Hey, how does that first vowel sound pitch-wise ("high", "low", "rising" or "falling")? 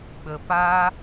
low